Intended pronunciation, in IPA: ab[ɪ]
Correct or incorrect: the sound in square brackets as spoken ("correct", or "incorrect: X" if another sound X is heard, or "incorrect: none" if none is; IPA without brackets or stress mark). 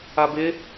correct